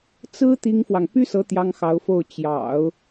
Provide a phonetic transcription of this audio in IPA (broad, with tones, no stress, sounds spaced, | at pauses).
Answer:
t͡s ɹ̩˥ t̪ i˥ ŋ f w ɑ˨ ŋ p y˥ s ɤ˧˥ t̪ j ɑ˥ ŋ x ɑ˧˥ ʊ̯ f o˥˩ ʊ̯ t͡ɕ j ɑ̰˨˩˦ ʊ̯